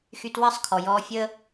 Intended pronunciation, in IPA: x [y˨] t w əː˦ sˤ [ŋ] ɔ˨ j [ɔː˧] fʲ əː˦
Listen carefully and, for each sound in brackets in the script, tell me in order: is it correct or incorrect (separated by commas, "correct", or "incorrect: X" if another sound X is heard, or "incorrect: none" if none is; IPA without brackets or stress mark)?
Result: incorrect: y˧, incorrect: kʰ, correct